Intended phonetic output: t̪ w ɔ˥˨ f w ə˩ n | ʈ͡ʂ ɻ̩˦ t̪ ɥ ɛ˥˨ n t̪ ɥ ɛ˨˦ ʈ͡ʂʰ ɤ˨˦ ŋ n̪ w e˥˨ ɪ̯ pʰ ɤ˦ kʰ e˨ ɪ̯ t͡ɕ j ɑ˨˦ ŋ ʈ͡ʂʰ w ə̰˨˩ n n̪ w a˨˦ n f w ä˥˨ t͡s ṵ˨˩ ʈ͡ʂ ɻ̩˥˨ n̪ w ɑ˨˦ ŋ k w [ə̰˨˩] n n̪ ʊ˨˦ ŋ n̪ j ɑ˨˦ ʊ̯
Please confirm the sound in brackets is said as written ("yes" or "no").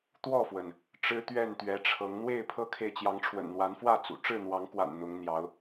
no